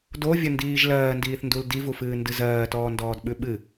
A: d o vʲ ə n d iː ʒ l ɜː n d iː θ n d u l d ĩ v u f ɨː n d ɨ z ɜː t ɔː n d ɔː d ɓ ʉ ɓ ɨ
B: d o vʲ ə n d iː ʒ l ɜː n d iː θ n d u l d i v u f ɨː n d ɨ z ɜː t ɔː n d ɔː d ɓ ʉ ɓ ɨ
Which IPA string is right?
B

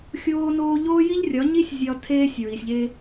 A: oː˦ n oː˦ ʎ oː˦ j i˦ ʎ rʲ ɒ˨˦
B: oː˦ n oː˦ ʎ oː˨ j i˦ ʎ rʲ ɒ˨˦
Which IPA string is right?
A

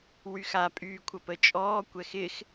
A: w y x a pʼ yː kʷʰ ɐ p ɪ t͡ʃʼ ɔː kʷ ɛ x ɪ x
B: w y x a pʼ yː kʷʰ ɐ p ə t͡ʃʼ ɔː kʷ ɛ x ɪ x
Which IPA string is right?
B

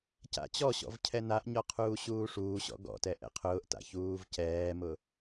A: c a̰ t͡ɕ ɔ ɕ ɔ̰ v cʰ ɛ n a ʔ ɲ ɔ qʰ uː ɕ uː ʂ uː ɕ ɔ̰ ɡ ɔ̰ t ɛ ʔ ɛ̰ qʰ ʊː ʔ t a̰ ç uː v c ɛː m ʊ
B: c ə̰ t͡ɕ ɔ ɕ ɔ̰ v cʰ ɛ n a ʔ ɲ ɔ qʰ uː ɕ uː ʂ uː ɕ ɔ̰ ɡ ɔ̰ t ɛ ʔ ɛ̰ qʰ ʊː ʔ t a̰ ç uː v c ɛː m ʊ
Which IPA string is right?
A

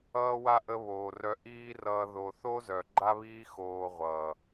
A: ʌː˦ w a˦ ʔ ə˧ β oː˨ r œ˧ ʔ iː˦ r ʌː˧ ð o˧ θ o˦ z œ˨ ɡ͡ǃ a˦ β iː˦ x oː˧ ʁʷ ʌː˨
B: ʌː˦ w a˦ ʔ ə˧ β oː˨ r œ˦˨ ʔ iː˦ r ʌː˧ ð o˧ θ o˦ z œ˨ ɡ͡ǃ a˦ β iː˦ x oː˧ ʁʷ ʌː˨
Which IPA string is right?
A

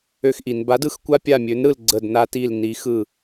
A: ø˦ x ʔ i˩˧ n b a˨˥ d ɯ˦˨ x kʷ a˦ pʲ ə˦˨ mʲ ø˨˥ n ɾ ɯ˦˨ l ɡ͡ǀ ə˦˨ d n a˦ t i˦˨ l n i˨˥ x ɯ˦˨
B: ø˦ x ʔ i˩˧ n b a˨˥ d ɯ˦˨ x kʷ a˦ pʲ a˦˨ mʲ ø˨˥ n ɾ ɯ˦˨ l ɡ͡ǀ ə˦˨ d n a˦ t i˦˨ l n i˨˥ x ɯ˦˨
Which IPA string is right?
B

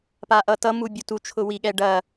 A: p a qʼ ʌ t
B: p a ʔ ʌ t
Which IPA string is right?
B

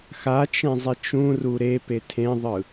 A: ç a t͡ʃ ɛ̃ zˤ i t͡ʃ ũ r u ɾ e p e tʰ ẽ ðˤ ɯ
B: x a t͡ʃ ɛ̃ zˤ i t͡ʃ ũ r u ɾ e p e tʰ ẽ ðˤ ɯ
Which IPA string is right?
B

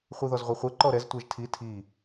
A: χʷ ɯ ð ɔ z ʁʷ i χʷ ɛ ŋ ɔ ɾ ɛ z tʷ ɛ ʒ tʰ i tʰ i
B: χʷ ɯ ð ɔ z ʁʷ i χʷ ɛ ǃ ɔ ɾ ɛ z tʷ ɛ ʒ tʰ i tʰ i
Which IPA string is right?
B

